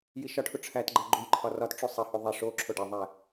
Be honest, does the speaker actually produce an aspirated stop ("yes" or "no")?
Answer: yes